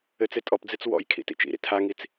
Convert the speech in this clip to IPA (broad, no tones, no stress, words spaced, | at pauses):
ɘt͡se tʼɔpd͡zet͡s wɔ̰jkʰḭ tḭt͡ʃḭɾḭ tʰaŋit͡s